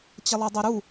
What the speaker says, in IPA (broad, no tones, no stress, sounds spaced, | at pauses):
t͡ɕ ɐ lˠ ɛ dˤ ɛ ɾ u